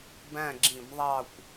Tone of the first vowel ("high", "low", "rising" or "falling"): falling